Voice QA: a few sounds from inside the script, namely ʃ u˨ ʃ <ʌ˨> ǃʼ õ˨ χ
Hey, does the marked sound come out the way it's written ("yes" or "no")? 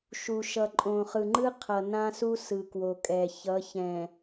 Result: yes